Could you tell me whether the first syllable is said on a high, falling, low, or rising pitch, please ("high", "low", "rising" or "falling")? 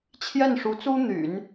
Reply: falling